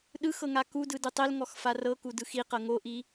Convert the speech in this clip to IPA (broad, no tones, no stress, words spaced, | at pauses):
ɗɯx ɤŋakudɯ dɯtˤelŋɔx farɤku dɯxiqɤ ŋoʔi